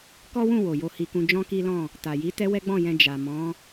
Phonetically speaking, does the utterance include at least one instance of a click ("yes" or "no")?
no